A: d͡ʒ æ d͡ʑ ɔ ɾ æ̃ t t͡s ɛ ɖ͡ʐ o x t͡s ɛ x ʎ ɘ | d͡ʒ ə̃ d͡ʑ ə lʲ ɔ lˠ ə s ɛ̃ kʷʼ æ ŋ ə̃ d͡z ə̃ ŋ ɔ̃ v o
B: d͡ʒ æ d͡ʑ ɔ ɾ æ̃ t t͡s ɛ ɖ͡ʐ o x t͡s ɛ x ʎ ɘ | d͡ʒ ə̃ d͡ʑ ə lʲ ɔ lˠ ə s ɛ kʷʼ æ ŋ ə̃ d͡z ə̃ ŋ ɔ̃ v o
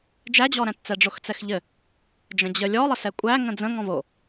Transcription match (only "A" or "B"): B